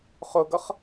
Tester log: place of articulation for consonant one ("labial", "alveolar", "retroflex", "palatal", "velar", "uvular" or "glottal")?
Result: uvular